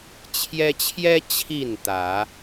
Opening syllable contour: high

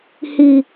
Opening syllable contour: low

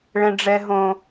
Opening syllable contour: high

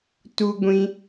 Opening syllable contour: high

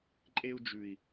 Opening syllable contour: high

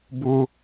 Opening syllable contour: high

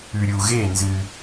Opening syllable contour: low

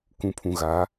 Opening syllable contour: low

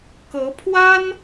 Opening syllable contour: rising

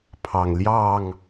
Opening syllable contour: low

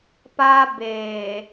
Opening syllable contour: high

